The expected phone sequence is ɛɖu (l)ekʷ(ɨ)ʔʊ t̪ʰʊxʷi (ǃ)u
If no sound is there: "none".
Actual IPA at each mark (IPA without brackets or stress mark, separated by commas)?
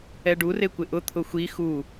r, ɪ, x